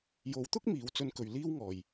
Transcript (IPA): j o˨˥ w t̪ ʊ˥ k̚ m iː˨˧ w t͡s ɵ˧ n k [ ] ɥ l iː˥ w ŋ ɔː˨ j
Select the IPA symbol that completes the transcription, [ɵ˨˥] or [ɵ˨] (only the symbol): ɵ˨